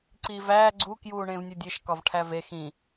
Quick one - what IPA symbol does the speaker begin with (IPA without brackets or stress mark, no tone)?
ǀ